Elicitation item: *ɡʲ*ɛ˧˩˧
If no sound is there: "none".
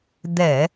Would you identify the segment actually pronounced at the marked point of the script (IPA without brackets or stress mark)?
d̪